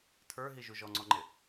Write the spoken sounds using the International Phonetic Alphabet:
tʰ ə˞ ɦ i ʒ u ʒ ɔ ŋ͡ǀ ɔ ŋ͡ǃ ɪ

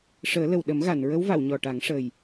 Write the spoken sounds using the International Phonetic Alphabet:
ʂ əː˨˩˦ l ə˨˩ w ɗ ə˨˩˦ m ɣ a˨˩˨ n ɹ ə˧˥ w v a˨˩˨ w ɲ ɔ˨˩ ʈ a˨˩˦ ŋ ʂ ə˨˩ j

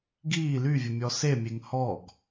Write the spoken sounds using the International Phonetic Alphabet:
ɡ iː l y vʲ ə mʲ ɔ s e mʲ e ŋ h ɔ ɡ

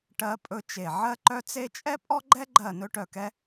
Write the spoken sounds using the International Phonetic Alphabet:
ʈ ɜ˥ pʼ ɵ˥ t͡ʃ e˦˨ ʕ ɜ˥ ǃ œ˥ t͡s e˥ t͡ʃʼ ɛ˥ pʼ ɔ˥ ɡ͡ǃ ɛ˥ ɡ͡ǃ ɜ˦˨ n ɵ˥ ʈ œ˦˨ k ɛ˥

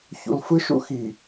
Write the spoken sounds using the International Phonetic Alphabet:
ç ṵ˨ l f ɯ˦ ʃ ṵ˦ x i˨

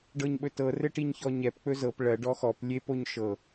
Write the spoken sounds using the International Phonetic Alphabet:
ɖ ɤ ɲ ɓ ɵ t ɤ r ɘ ʈ i ɲ ç ɔ ɲ ɛ p k͡p ɵ z ɤ p ɭ ɜ ɖ ɔ x ɔ p lʲ e p o ɲ ʃ ɤ

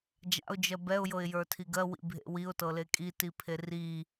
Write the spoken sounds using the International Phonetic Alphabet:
d͡ʒ a̰ ʊ̯ d͡ʒ ɜ b ɛ ʊ̯ j ɤ ɪ̯ j ə˞ tʰ i ɡ ɜ w ḭ bʱ ḛ w i ʊ̯ t ɤ l e kʼ i t i pʰ e r i

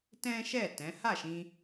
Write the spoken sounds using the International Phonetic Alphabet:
t ɛ̃˦ ʃ ɛ˦˨ t ɛ̃˨˦ h a˦˨ ʃ ĩ˧

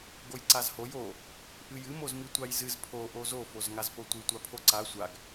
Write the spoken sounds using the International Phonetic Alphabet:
ɡ o j ǀ a z h o j o | ʔ ɨ j ɨ m o z m i tʷ a j z ɨ z pʰ o ʔ o z o f o z ŋ a z p o tʷ ɨ tʷ a pʰ o ǀ a sʷ a ɡ

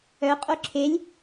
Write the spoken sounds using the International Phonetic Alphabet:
œ qʼ o ǁʰ e lʲ

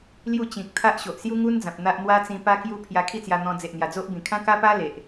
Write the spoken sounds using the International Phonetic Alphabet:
l j u˥˧ t͡ɕ ĩ˨ k̚ t̪ʰ a˦ ʔ ɕ o˨ ʔ s j u˦ ŋ u˦ n d͡z ã˨ p̚ n̪ a˦ ʔ n̪ w a˦ t͡s ĩ˧ p a˦ k j u˦ pʰ j a˧ kʰ i˥˧ t͡s j a˧ n̪ ɔ̃˧ d͡z e˨ ʔ n̪ j a˨˩ d͡z o˦ ʔ b ĩ˨˩ kʰ ã˦ k a˦ p a˦ l e˨ ʔ

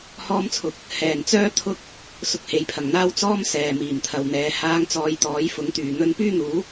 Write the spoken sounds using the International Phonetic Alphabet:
h ɔː˥ m t͡sʰ ʊ˨ k̚ | h ɛː˨˩ n t͡s œː˥ t̪ʰ ʊ˥ k̚ | s ʊ˧ k̚ h e˨˧ j pʰ ɐ˨˩ ŋ n̪ aː˥ w t͡s ɔː˥ m s ɛː˨ m iː˨˩ m t̪ʰ ɐ˨ w n̪ ɛː˨˧ h aː˧ ŋ t͡s ɔː˨˧ j t̪ ɔː˨˥ j f ʊ˨˥ ŋ t̪ yː˨˩ n̪ ɵ˧ n p yː˥ n̪ uː˨˥

